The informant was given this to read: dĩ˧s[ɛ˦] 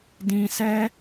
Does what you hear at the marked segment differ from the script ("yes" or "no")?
no